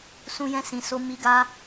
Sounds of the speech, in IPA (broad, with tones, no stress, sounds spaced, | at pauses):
s ũ˧ j ɛ̃˧ s ĩ˨ s o˧ m i˧ ɡ a˦